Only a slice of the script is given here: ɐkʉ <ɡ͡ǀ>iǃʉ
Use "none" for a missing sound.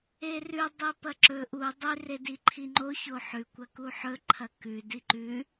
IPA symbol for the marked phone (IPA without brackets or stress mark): d